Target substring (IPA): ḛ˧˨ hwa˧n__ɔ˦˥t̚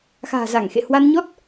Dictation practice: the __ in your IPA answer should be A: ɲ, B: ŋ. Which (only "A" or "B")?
A